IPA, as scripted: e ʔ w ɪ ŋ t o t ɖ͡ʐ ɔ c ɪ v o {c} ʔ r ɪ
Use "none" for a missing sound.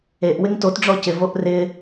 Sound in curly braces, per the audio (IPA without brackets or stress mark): none